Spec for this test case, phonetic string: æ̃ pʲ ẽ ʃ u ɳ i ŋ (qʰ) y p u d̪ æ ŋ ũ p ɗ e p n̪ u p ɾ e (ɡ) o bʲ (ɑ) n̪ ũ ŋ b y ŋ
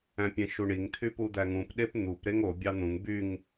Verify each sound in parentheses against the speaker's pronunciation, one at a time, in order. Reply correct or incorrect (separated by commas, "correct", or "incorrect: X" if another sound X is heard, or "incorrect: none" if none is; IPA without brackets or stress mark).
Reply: incorrect: t̪ʰ, incorrect: ŋ, correct